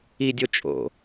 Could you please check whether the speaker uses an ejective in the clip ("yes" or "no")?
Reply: yes